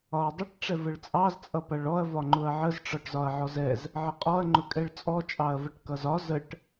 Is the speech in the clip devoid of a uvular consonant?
no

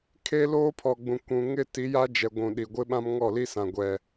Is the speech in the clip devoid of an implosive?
no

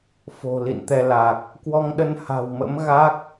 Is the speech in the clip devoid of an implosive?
no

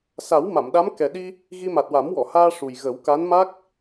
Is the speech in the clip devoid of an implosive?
no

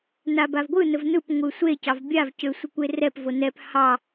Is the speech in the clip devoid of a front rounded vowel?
no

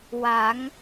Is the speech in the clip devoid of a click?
yes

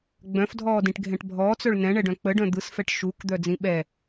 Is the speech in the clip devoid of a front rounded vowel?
no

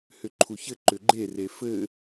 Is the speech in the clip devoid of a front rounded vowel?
no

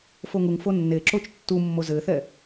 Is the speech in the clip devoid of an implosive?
yes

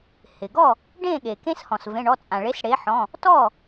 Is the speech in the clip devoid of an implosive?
no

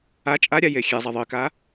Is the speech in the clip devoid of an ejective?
no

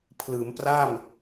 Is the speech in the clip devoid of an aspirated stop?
no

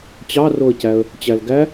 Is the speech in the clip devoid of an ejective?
yes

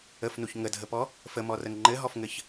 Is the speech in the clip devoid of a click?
no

